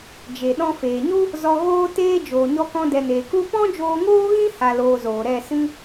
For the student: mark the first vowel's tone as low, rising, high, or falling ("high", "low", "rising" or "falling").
low